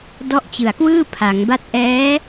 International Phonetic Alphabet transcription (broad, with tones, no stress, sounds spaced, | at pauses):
d ɔ˦˥ ʔ t͡ɕ ɯ˨˩ a̯ k w ɯː˥˩ pʰ a˩˦ ŋ b a˥˩ t̚ ʔ ɛː˦˥